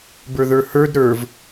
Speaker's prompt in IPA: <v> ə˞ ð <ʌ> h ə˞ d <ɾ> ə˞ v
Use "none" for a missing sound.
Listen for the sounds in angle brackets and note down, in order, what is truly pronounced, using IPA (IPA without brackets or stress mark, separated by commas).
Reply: b, ə˞, ɾ